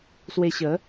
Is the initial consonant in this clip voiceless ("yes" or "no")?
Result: yes